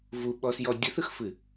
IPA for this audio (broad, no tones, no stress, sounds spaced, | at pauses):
v u ɓ ɔ s j ɔ dʲ ə θ ɯ x f ɨ